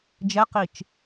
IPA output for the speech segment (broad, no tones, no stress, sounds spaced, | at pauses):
d͡ʒ ɛ q i t͡ʃ